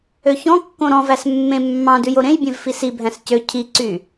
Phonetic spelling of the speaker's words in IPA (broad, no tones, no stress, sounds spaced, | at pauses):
ø ç ɔ̃ kː õ ɾ ɔ̃ v æ s mː ẽ mː ɑ̃ d ʉ j o ɾ ẽ j bʲ ẽ v f i s i bʱ æ̃ s c ø cʰ i ǀ y